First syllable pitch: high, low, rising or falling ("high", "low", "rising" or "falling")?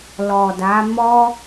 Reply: low